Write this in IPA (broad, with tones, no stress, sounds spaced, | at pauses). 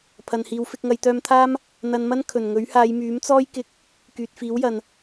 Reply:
pʰ ɐ˨ n h iː˨˧ w f ɪ˧ k̚ ŋ ɐ˨˧ j t̪ œː˧ m t̪ʰ aː˥ m | n̪ ɐ˧ n m ɐ˥ n kʰ ɵ˨˩ n ŋ ɵ˨˥ ɥ h aː˨˧ j m yː˨˥ m t͡s ɔː˥ j k ɪ˧ k̚ | k yː˨ t̚ f iː˨˥ w j ɐ˨ n